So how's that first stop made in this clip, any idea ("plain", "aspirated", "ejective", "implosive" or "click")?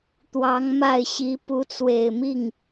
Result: plain